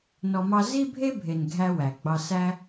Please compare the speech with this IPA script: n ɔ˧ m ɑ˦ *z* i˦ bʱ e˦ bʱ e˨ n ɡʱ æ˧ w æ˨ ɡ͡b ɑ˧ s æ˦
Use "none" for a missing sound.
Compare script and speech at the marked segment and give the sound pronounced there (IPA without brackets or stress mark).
z